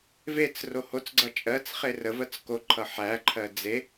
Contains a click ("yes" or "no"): yes